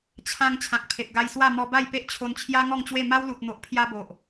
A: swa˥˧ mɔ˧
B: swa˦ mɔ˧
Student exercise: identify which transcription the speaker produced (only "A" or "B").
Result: A